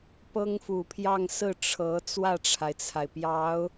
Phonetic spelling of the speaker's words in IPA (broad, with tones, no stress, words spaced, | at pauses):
pɤ˥ŋfu˨˩pʰjɑ˥˧ŋ sɹ̩˥˩ʈ͡ʂʰɤ˧˥ t͡swä˥˩ʈ͡ʂʰa˩ɪ̯t͡sʰa˩ɪ̯pjɑ˧˥ʊ̯